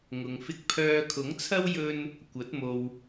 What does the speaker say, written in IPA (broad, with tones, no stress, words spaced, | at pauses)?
ŋʊ˨ŋ fɪ˧k̚pʰœː˧kʰʊ˨˥ŋt͡sʰɐ˥w jɵ˥n | kʷɐ˨˥t̚mo˧w